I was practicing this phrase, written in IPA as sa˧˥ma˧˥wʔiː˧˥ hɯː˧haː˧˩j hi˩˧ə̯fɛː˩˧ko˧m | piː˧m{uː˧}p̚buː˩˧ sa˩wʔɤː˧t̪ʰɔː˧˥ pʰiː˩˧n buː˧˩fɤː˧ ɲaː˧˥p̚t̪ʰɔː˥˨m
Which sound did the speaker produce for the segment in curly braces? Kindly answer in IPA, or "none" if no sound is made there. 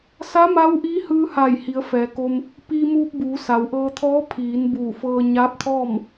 uː˧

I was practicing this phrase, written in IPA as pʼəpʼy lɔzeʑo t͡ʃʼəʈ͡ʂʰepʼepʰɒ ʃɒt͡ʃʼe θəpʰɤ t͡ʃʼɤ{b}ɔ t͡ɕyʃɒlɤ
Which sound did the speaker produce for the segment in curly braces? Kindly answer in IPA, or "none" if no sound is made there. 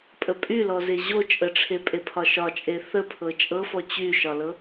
f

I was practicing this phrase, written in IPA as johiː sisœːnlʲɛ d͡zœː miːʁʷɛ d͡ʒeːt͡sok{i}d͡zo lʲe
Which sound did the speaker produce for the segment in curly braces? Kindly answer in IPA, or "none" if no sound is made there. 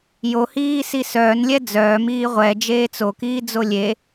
iː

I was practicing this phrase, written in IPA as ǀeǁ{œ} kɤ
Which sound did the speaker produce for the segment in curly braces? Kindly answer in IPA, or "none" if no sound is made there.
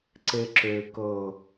ø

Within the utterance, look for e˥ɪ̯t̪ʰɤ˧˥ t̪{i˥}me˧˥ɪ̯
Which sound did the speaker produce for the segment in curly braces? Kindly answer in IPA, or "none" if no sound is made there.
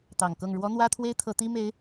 i˥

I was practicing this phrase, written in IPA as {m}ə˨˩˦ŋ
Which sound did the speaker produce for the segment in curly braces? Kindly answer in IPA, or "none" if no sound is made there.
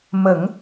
m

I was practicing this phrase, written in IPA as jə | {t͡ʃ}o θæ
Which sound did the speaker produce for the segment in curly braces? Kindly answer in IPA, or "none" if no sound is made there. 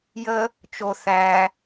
t͡ʃ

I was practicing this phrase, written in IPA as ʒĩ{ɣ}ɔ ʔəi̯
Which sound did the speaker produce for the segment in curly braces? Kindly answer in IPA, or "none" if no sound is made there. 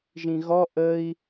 ɣ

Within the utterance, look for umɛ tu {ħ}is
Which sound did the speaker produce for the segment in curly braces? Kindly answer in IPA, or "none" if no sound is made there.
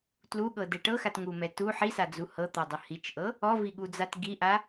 ħ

